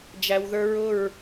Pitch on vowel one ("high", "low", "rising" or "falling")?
low